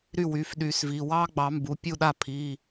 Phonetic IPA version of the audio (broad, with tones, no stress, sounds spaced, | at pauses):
ɾ y˥˩ w y˩˧˩ f ɗ y˨˩˦ s v i˩˧˩ w ɑ˦ ɡ͡b ɑ˨˩˦ m b u˩˧˩ pʲ u˥˩ ɗ a˥˩ pʰ i˩˧˩